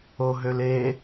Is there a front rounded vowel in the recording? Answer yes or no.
yes